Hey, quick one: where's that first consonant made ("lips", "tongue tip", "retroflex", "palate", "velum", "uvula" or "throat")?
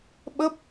lips